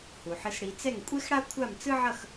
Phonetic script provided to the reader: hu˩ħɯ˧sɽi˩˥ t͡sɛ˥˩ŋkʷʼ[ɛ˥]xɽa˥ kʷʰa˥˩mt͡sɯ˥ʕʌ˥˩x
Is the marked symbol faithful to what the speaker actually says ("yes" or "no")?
no